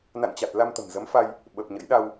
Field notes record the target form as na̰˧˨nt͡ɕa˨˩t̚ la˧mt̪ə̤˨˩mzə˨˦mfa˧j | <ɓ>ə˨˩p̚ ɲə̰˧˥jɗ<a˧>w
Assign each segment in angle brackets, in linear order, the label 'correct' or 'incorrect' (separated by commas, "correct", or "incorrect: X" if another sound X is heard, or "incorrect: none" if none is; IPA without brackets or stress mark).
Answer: correct, correct